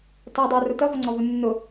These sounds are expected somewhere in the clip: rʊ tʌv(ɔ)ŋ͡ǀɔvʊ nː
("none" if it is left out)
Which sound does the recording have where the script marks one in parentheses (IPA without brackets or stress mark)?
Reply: ɔ